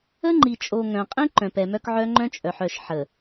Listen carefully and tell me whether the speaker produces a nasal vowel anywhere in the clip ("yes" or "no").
yes